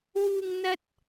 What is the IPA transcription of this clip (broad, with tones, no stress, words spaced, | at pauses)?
wuː˧ŋ n̪ɐ˥t̚